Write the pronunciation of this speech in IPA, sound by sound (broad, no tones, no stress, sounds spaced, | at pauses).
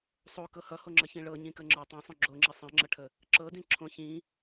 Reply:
sˤ o k ɤ h ʌ h o ŋ͡ǁ ʌ ç ĩ ɭ ɤ ɲ ĩ k ə ŋ͡ǁ ə˞ tˤ õ sˤ õ ɡ͡ǁ o ŋ͡ǁ i sˤ ĩ ŋ͡ǁ ʌ ʈʰ ə | ǁ ɤ d ĩ ǁʰ õ ç ĩ